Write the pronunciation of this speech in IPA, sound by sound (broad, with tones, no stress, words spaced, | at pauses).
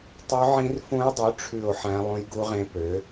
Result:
tˤy˦˥ʕĩ˦˥rfũ˦˥jdˤu˨˥ ʈ͡ʂʰʉ˥˧o̯ħæ̃˦˥ lˠũ˦˥jɡu˦˥ʁẽ˦˥pø˨˥